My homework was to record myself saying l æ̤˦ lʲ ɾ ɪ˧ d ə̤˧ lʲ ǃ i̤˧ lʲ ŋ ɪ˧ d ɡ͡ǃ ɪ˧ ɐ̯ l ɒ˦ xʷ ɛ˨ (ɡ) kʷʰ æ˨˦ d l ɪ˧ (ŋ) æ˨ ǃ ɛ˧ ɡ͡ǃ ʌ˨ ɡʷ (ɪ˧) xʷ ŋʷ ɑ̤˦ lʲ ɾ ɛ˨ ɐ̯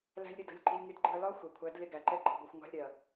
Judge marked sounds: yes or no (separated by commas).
no, no, yes